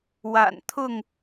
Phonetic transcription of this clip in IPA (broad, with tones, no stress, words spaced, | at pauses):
wa̰˨˩nt̪ʰʊ˥˨ŋ